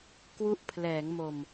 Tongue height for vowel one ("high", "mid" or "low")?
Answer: high